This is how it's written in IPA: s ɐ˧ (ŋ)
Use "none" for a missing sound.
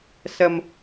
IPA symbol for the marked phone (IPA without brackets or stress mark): m